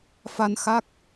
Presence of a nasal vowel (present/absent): absent